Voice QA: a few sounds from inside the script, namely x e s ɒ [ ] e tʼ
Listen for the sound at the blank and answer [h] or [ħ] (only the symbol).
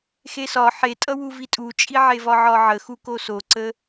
ħ